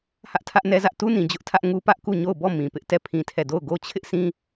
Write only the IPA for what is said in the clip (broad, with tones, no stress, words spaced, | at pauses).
hä˦ʔtʰä˦ʔnɛ˦zä˦ʔ tu˦nĩ˨ d͡ʑʊ˦ʔtʰä˦ʔ ŋu˦pä˦ʔku˦˨ɲo˦˨ʊ̯ bɔ˦˨ mĩ˨pɪ˦ʔ tɛ˦˨pʰĩ˦tʰɛ˦˨ do˦˨ʊ̯ɡo˦ t͡ɕʰɪ˦ʔsʰĩ˦